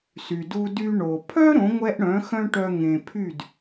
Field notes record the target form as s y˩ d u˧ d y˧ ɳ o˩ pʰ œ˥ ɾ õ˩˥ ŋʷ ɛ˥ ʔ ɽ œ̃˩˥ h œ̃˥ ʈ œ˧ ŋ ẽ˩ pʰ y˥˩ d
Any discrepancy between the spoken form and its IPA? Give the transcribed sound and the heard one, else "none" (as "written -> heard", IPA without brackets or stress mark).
h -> x